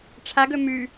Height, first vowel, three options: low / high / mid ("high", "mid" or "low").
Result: low